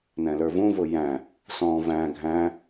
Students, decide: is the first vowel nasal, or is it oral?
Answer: nasal